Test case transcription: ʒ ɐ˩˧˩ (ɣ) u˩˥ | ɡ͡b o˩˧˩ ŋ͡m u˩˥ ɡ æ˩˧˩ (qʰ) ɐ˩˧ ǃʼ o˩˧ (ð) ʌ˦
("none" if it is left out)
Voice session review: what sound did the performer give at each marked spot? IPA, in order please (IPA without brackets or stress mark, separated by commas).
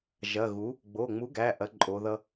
ɣ, ʔ, ð